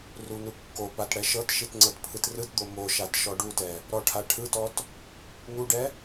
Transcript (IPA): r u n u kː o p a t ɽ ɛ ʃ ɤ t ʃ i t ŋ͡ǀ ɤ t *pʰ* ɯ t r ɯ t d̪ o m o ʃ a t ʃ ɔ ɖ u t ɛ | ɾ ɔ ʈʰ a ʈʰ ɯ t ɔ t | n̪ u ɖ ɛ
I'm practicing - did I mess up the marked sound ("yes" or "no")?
no